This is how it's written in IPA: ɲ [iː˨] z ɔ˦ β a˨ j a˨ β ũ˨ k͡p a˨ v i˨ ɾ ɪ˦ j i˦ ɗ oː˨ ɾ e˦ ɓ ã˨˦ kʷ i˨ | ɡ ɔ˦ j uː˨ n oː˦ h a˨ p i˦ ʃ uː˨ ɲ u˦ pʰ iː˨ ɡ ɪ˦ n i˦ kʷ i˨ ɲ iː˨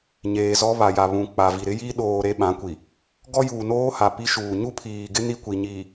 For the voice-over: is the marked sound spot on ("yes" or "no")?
no